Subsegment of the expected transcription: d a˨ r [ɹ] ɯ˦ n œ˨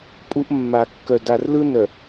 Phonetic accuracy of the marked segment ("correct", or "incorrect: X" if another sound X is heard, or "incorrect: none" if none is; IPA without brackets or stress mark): incorrect: l